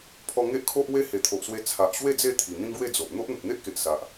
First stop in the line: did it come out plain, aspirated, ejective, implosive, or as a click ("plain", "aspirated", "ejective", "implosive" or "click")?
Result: aspirated